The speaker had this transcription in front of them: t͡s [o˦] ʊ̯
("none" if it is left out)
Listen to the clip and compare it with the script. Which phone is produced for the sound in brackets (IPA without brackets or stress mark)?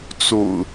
o̰˨˩